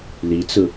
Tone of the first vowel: rising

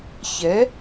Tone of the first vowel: rising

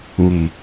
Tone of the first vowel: low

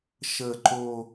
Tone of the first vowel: low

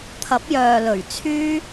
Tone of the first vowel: rising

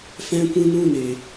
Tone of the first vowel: high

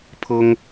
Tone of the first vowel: high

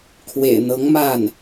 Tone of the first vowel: low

